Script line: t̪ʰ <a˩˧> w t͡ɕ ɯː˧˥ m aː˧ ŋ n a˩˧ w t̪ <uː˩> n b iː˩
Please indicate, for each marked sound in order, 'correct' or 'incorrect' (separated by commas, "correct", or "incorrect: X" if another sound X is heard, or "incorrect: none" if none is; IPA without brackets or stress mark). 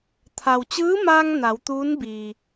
incorrect: a˩, incorrect: uː˧˥